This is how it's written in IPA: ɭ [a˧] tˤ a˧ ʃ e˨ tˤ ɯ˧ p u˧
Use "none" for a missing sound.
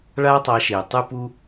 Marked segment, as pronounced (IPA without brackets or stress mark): a˦